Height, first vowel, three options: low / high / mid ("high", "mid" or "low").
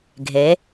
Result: mid